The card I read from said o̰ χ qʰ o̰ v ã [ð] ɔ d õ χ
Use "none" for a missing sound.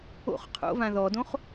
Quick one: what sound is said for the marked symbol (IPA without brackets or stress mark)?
ð